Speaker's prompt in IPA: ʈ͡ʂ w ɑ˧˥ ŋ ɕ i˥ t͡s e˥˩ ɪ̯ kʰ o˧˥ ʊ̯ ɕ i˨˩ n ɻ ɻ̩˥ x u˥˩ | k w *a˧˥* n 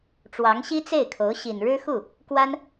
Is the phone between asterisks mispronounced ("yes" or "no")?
yes